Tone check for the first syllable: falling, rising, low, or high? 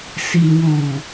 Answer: low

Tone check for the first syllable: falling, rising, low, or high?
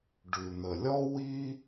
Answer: low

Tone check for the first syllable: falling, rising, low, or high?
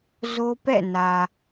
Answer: high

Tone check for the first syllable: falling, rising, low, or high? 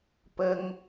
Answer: high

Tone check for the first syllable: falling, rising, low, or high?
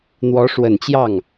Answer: rising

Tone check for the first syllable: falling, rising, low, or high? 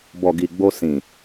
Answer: low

